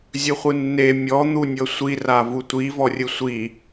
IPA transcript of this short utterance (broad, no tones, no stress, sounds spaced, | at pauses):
zʲ ɯ χʷ ɯ nː e mʲ ɔ n̪ u nʲ ɤ sʷ i r a v u tʷ i v ɔ rʲ ɯ sʷ i